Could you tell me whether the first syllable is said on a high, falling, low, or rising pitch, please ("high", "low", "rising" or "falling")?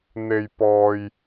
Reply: low